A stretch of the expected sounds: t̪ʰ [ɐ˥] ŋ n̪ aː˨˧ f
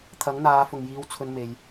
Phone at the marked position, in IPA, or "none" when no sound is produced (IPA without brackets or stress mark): ɐ˨˥